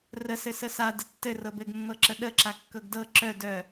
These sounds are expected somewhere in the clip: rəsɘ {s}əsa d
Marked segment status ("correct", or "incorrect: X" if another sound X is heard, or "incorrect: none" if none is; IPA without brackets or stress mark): correct